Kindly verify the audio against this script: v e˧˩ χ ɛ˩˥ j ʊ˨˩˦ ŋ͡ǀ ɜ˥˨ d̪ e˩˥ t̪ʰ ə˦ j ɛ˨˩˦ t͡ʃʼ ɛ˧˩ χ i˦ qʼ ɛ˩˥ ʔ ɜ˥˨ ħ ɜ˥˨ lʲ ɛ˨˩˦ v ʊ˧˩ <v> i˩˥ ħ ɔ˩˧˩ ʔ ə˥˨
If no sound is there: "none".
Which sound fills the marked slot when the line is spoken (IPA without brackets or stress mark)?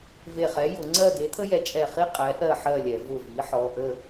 v